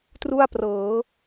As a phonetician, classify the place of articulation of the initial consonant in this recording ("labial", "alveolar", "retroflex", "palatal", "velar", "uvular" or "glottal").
alveolar